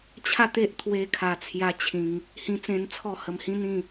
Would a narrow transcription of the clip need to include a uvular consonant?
no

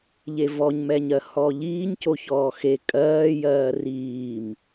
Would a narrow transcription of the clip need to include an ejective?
yes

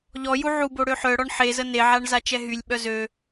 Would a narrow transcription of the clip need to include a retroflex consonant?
yes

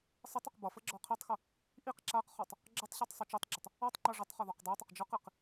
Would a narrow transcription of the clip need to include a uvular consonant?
yes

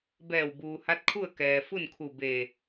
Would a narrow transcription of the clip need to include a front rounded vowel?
no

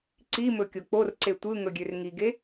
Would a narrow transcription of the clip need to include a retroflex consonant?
no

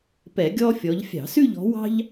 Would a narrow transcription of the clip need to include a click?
no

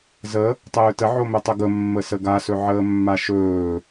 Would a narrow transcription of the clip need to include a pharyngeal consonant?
yes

